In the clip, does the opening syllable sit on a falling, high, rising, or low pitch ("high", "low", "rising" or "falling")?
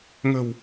low